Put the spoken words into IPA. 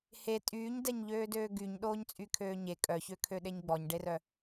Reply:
h e tʼ yː ɲ d ɛ ɲ ʎ øː d øː ɡ y ɲ ɗ oː ɲ t͡sʼ y kʰ øː ɲ e kʼ œ ç ø kʰ ø ɗ e ɲ ɡ͡b ɔ ɲ ɖ e r œ

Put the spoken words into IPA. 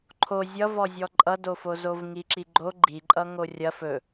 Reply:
ǃʰ o zʲ ʌ v ɔ zʲ ɔ ǃʼ ʌ d o f o z o v ŋ i ǁ i ɡ͡ǃ o ɡ͡ǃ i ǃʼ ʌ ŋ o rʲ ɐ f ɵ

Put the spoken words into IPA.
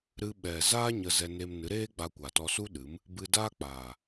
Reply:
ɾ ɨ˧ ɓ ɛ˨ z aː˦ ɲ ə˧ z ɛ˧ n e˧ m n ɨ˨˦ ɾ eː˦ ɡ͡b a˧ kʷ aː˨ t ɔ˧ s u˦ ɗ ɨ˨˦ m | b ɨ˧ d aː˦ k͡p aː˨

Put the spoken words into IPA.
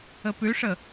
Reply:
ə p ʉ ʂ ə

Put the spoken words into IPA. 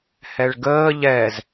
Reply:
h ɛ ɭ ɡ əː ʎ ɛ z

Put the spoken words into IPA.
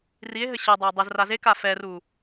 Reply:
r i e̯ ɦ ɘ ɕ ɐ dˤ ɐ o̯ dˤ ɛ z r a z e k a f ɛ r u

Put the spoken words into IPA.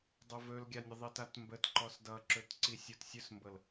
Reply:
dˤ o v ɵ l ɡʲ a nʲ ə ðˤ i t a t m b ə t ǃ ɔ s d ʌ ǁ ɵ t ǀ i sʲ o t sʲ ɵ s m b ɤ l

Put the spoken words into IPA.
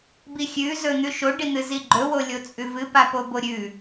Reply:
b i xʲ ʉ z ɵ n̪ ʉ ʃ o ɖ i n̪ ɨ z i ɡ͡ǃ ɵ w o lʲ o t͡sʼ ʉ v ɨ p a p o b o ɾʲ ʉ

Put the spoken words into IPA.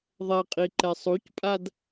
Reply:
ðˤ ɛ qʼ i ǃ ɛ sˤ u c pʼ a d

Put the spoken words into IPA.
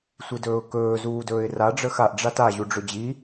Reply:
sʷ i d ɵː ʊ̯ k ɵː z uː d ɵː ɪ̯ r a ɖ͡ʐ əː x a ʔ ɖ͡ʐ a t a ʑ u ɖ͡ʐ ɵ d͡ʑ i

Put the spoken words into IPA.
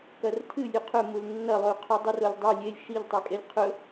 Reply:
k ɐ r tʰ ɨ lʲ ʉ qʰ ɵ m u l nː ɐ lˠ ʉ qʰ u dˤ ɨ r o lʲ dˤ ɵ lʲ e lʲ ʃ i ʎ tˤ ɨ kʼ e lʲ qʰ ɵ

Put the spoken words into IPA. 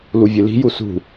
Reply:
l u vʲ ɨ l i̤ j u s ṳ

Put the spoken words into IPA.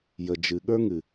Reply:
j ə˨ d͡ʒ ɨ˨ ɠ ə˞˦ ŋ ɨ˨

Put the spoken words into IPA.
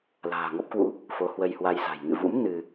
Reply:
l a̤ː˨˩ ŋ ɔ˦˥ p̚ k w ṵ˧˥ | f o˨˦ h w ə˧ j h w a˧ j s a̤˨˩ j ŋ ɨ̰˧˨ v ṵ˧˥ m n ɨ˧

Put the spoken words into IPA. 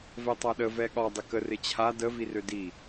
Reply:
v ɛ tˤ a ɗ ə v ɛ ɠ ɒ dˤ ɪ k ə r ɪ t͡ɕʰ a d ə v i r ø d i

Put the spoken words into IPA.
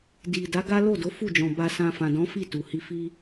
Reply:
d i˨ d a˨˦ ɡ a˦ l o˦˨ d o˨˦ f u˦˨ d͡ʒ ɔ̃˨ b a˧ s ã˧ f ã˨ d ɔ̃˨˦ f i˦˨ t u˨ h i˧ f i˦

